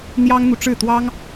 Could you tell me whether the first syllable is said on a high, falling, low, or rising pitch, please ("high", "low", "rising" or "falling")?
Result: high